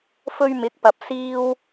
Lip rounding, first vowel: rounded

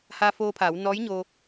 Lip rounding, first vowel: unrounded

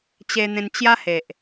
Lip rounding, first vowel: unrounded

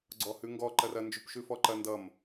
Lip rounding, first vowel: rounded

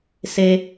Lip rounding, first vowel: unrounded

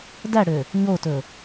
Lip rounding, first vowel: unrounded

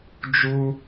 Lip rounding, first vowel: rounded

